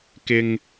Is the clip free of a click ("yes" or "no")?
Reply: yes